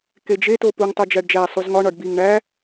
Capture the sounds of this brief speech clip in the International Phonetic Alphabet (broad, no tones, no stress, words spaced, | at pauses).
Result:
ked͡ʒeto puŋ tˤod͡ʒæɖd͡ʒæ sˤuzŋɒ ɳɒɖbiŋ ɳæ